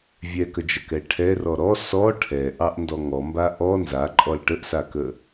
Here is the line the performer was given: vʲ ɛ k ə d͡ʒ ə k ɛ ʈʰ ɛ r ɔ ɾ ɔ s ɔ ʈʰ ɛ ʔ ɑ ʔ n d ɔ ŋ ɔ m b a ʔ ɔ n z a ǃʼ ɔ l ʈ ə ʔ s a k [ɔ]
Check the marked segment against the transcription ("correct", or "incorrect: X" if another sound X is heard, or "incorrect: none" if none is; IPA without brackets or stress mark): incorrect: ə